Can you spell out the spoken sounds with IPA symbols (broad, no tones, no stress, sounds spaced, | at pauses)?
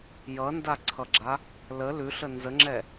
j ʌ n d a ǀʰ ʌ ɡ͡ǁ a | l ə l ʉ ɬ ə n z ə ŋ͡ǁ ɛ